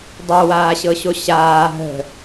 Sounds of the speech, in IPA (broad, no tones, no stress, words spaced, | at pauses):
dˤowaːɕɤɕo ɕaː ɦə̤